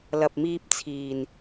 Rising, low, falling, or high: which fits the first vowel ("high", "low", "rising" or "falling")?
low